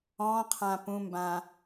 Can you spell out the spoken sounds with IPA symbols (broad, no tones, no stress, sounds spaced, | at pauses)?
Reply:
ɔ̃ qʰ ã p ũ m b ã